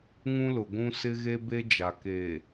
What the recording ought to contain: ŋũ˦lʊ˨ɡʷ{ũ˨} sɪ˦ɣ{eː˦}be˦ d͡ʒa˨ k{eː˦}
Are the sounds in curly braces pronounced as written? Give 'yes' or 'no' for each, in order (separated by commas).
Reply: no, no, no